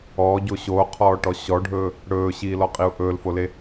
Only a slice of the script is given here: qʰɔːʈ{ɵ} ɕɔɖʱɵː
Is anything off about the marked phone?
yes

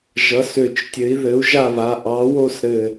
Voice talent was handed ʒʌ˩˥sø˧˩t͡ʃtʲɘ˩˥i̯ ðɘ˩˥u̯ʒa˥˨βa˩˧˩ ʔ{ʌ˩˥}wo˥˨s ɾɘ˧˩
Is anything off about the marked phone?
yes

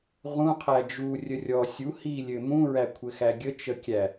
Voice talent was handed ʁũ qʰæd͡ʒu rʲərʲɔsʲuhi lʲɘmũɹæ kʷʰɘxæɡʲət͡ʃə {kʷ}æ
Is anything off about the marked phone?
yes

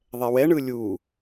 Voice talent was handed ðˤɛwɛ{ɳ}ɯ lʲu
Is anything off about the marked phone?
no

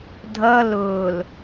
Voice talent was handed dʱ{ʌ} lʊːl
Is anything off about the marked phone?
no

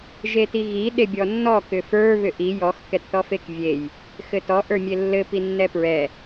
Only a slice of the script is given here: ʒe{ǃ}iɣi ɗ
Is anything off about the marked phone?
yes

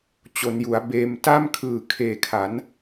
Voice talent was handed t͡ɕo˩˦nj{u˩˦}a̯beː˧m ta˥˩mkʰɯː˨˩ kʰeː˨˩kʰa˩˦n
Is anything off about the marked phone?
no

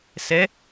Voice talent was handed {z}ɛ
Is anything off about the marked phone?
yes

